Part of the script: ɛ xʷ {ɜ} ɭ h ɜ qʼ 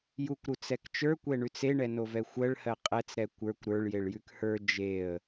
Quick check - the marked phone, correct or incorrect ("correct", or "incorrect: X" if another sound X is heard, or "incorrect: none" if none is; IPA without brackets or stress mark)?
correct